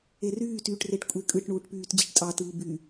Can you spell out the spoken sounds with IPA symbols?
eryːtyːʈreʈ kʷʼekʼɯʈɳuːʈpyːt d͡ʑiʈtʼɑtɯː by

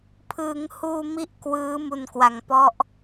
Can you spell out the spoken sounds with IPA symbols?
pʰɯ˩˦ŋhuː˧mi˦˥ʔ kwɯː˦˥ mu˨˩nkwa˩˦ŋpɔ˦˥ʔ

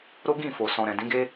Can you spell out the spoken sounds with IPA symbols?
ɾo˦ ɡĩ˦˨fo˨ sɔ̃˨ɾɛ̃˨ dĩ˨˦ɡe˦

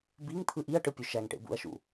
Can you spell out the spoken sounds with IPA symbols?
biŋ t̪ʰɯʔiɐ̯ʈɯ pʲøʃæŋʈḛ bṵɐ̯ʃṵ

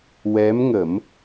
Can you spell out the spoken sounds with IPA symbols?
wɛ˧˥mŋə˨˩˦m

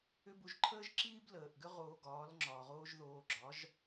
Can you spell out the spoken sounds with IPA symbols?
ʏ˥bu˧ʒ ǃʰəː˥ʒǁiː˥bləː˩ʔɡʏ˥ ʁoː˧ɡɒː˩˥l ŋ͡ǁɒː˩ ʁoː˥ʒðoː˧ ɡ͡ǁɒ˩˥ʒ

